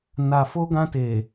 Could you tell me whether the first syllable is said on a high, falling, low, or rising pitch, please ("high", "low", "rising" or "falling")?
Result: low